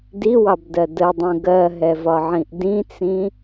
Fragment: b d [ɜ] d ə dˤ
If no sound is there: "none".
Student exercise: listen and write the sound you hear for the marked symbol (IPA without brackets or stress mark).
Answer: ɜ